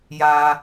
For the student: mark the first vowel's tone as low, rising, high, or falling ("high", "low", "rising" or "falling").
high